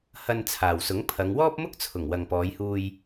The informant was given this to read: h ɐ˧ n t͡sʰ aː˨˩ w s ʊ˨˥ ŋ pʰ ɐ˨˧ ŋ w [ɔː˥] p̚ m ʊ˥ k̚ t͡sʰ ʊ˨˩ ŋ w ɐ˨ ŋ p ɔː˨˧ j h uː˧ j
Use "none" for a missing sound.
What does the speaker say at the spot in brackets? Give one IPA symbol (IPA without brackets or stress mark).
ɔː˥